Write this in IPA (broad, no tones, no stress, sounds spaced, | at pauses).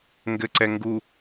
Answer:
ŋ ɡ ɘ ǀ ɛ ŋ ɡ u